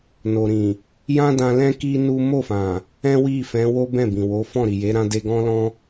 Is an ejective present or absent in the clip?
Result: absent